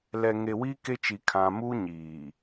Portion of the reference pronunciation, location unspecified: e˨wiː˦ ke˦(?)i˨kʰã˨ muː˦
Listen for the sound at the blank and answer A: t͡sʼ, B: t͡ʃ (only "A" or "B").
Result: B